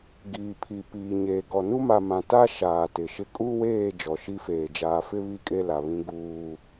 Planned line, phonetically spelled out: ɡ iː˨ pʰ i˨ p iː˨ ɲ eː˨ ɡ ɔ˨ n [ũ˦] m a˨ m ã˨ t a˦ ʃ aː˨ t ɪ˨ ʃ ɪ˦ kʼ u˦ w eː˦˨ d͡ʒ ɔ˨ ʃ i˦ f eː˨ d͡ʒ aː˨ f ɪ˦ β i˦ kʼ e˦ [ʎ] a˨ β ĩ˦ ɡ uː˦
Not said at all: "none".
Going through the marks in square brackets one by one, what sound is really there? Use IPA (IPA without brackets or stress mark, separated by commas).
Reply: u˦, l